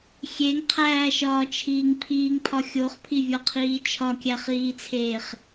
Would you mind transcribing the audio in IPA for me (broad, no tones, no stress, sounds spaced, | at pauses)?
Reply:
xʲ e ŋ qʰ æː ʃ ɒː t͡ʃʰ iː ŋ pʰ iː ŋ pʰ ɒ xʲ o χ pʰ i vʲ ɒ qʰ iː t͡ʃʰ ɒ kʲ æ χ iː t͡sʰ eː χ